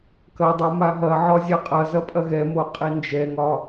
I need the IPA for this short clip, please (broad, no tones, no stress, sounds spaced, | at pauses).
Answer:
k ɐ dˤ o m a ɦ ɐ ʕ ɒ zʲ a qʼ ɐ z ɐ pʼ ɐ ɣ ɛ m o qʼ i n d͡ʒ ɛ ŋ ɒ